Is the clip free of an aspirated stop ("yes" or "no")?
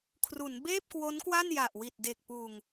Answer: no